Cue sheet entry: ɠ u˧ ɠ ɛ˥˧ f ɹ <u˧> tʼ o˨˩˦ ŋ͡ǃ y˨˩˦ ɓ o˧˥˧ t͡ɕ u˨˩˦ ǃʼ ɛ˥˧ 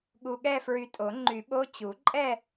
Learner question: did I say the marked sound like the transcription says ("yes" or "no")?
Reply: no